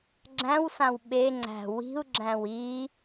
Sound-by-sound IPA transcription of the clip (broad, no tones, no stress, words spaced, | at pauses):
ɡ͡ǁæ̃wsãw ɓe ŋ͡ǀæ̤ wi̤u̯ɡ͡ǁæ̃w i